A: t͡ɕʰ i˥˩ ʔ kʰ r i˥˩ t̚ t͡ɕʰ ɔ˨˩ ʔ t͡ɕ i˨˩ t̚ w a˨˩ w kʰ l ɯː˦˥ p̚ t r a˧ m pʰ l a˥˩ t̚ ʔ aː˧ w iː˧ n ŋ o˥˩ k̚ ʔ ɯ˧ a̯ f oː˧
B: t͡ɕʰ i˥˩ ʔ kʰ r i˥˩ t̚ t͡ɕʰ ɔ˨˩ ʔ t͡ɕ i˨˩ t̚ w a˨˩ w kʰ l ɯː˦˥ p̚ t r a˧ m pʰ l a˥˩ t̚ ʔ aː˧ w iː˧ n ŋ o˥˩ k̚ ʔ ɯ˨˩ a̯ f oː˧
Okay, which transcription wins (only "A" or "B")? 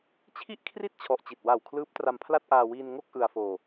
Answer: A